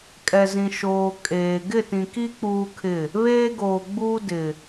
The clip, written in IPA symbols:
kʼɛ˨zĩ˨ ʃoː˨ kʼeː˨ ɡɪ˦˨tĩ˨ki˦ k͡puː˦kʰɪ˦˨ | βeː˦ɡoː˨ɡ͡buː˦ dɪ˨

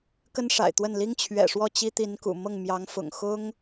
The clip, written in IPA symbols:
kə˥nʂa̰˨˩ɪ̯t̪wə˥˩n li˥ŋt͡ɕʰɥɛ̰˨˩ʂwɔ˥˩ t͡ɕi˥t̪i˧˥nkṵ˨˩ mɤ˥˩ŋmjɑ˧˥ŋfʊ̰˨˩ŋ xʊ˥ŋ

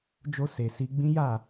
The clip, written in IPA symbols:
d͡ʒo˧se˨ si˧ɡ͡bĩ˦ ja˦˨

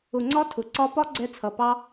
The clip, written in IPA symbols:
ʊ˨ŋ͡ǀɒ˧ tʰʊ˨ǀɒ˧ pɒ˦ɡ͡ǀɛ˧t͡sʰʌ˨ pɑ˦

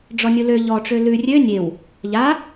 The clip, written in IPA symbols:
ɖ͡ʐɔnʲulø ʎɔʈ͡ʂø lʉ rʲø nʲew | ʎa

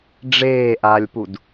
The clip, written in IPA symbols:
ɖ͡ʐeːʔaːlʲpud

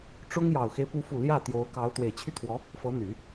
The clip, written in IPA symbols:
ʈ͡ʂʊ˥ŋjɑ˨˩ʊ̯xe˦ɪ̯ pu˧˥fu˨˩ ljä˥˩ t̪jo˧˥ʊ̯kɑ˧˥ʊ̯ t̪we˨˩ɪ̯t͡ɕʰy˥t̪ʰwɔ˧˥ | fɤ˧˥n̪y˨˩˦

